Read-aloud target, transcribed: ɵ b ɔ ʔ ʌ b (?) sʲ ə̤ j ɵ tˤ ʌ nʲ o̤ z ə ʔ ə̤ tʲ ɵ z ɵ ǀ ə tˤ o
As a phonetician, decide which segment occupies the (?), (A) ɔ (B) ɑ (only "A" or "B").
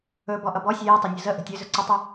A